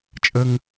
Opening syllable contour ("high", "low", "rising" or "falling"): high